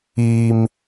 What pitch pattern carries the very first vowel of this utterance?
low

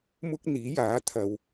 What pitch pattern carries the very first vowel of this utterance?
high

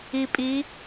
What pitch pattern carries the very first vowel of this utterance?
low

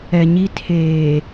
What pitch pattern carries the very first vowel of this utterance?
low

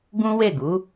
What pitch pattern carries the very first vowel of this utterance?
high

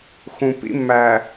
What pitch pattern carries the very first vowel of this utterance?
low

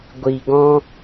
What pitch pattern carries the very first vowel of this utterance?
low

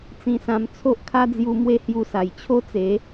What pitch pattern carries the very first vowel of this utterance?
low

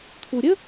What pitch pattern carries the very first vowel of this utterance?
low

